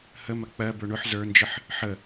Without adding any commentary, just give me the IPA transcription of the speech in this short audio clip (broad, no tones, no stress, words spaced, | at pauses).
həmɐ k͡pɜbə˞ ɳʊħ zə˞nd͡ʒəħ | ħə